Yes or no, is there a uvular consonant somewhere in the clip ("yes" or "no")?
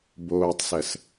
no